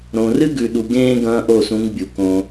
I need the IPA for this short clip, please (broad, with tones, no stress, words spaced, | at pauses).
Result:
ɾõ˨rɨ˦ɡʉ˨ɗu˨ ɡẽː˦ ɡɐ̃ː˦ ʔo˦˨sũ˨˦ŋ bʲu˨kõ˦